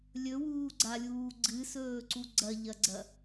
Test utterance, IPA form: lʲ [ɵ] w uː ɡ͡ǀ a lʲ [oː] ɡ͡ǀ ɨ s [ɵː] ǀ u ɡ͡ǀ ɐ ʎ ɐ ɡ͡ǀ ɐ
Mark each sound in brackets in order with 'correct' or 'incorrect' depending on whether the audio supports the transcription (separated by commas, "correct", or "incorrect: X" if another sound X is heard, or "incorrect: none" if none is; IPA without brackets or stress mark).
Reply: correct, incorrect: uː, correct